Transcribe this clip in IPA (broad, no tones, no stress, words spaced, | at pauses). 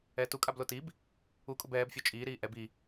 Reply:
ɛːtukʼablo tib | ukʼʊb ɛːbfʲo t͡ʃʼiːɾiː ʔɛb i